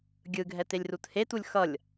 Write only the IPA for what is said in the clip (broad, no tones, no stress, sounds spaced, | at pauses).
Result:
ɡʲ ɯ ɡʱ ɛ t e lʲ r u t h e t u lʲ x ʌ lʲ